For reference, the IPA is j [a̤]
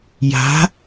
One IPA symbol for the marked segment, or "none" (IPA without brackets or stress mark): a̤